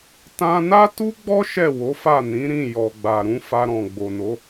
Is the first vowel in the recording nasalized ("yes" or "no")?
yes